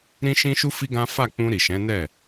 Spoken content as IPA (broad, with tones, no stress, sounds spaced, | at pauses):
ɾ ĩ˦ ʃ ĩ˦ ʃ u˦ f i˦ ɡ ã˦ f a˦˨ k͡p ũ˧ ɾ i˨ ʃ ɛ̃˨˦ n ɛ˦˨